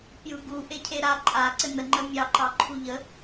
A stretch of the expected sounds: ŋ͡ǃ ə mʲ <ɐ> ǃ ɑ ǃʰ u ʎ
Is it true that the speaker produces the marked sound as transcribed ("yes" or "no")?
no